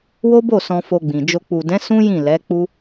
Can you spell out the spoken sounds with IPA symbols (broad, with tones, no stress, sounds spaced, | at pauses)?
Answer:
w o˦ b o˦˨ s ɔ̃˧ f o˧ ɡ͡b ĩ˨ d͡ʒ o˧ k͡p u˨ d ɛ̃˨˦ s ũ˦ j ĩ˦˨ l ɛ˨˦ k͡p u˦